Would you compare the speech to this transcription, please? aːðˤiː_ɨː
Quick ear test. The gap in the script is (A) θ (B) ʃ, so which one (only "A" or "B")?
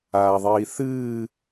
A